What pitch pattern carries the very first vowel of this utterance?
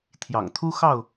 low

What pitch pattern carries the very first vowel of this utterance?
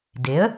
rising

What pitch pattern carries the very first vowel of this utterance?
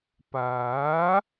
rising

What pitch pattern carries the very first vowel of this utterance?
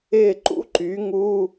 falling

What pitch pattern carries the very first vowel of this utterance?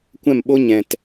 falling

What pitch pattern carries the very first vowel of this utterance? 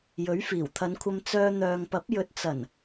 rising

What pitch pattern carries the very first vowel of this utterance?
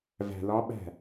low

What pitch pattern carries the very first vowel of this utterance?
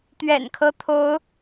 low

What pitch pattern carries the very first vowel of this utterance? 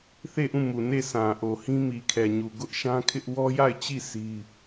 falling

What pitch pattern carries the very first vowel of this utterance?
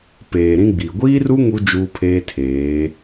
low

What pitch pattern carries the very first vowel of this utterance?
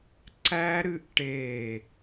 high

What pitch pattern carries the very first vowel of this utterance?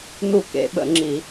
falling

